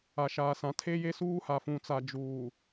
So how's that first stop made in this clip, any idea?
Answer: aspirated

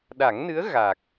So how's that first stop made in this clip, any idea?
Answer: implosive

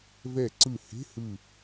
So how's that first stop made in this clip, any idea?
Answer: click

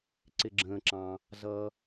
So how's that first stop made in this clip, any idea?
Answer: click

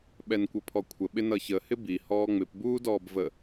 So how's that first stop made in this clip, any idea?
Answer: implosive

